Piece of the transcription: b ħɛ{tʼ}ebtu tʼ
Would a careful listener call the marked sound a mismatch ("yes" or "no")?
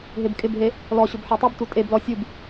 yes